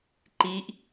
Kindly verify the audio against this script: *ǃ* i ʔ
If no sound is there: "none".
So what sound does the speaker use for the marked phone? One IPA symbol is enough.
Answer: ǃ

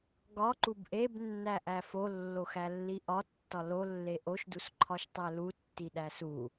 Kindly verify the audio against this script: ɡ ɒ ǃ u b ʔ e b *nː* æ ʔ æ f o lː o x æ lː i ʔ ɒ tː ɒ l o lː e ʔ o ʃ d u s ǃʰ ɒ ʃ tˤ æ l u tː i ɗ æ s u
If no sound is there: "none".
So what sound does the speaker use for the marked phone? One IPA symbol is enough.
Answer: nː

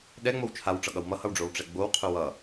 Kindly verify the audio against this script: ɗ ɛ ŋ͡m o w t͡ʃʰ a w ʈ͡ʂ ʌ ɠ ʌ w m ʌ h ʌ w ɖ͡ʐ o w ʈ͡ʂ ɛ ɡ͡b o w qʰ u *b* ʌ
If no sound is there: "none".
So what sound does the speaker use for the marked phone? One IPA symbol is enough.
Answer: w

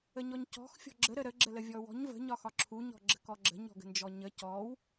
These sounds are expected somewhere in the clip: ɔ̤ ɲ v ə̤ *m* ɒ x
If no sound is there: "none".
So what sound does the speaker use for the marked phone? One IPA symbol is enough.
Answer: ɲ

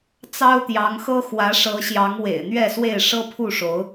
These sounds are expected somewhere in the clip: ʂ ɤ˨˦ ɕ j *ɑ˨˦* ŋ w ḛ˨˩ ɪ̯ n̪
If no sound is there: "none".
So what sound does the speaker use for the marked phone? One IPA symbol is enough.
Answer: ɑ˨˦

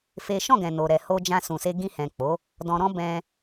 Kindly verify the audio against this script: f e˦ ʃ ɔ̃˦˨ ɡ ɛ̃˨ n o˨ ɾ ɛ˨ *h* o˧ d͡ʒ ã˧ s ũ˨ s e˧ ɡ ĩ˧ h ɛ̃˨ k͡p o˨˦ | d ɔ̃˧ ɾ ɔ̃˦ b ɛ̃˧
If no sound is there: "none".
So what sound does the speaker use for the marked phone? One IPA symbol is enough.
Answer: h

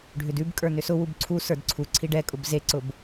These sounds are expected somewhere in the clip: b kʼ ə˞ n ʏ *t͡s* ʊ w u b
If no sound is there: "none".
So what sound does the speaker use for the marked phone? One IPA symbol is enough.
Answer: s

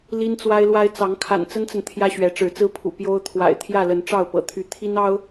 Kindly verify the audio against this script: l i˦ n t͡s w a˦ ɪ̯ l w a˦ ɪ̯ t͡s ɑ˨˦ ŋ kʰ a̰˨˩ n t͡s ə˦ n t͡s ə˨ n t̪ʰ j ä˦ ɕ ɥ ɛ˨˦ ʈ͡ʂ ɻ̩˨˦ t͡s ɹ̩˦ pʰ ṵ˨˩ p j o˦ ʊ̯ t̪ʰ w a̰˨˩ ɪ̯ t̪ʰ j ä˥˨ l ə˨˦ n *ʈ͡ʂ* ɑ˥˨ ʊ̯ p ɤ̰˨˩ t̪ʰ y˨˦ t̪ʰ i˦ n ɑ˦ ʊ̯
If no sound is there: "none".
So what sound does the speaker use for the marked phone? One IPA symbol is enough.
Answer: ʈ͡ʂ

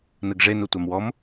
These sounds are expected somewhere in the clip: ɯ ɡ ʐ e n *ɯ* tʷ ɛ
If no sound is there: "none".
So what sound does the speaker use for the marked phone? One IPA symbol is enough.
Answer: u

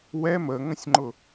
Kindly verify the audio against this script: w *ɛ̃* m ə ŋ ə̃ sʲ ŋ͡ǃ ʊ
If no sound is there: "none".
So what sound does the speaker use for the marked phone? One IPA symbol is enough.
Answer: ɛ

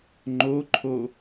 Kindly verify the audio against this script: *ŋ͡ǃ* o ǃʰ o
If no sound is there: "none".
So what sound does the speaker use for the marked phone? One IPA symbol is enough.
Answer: ŋ͡ǃ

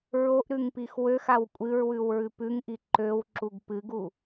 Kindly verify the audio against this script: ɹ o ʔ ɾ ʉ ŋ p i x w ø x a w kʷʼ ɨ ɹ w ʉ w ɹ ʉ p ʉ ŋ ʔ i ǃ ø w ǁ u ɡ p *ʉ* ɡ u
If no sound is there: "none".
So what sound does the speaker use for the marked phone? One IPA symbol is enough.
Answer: ɨ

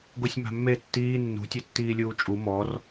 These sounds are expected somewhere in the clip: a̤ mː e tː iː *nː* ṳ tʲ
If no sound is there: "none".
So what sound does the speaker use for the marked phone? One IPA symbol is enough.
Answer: nː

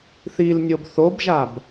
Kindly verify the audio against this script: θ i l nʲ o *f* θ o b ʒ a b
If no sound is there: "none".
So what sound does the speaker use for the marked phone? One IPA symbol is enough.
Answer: b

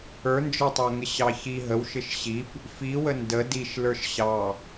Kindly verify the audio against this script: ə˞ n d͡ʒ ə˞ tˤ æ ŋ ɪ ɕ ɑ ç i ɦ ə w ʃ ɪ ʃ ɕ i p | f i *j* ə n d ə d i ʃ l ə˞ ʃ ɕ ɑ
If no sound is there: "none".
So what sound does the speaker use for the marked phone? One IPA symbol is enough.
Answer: w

